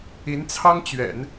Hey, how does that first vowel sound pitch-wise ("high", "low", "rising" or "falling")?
rising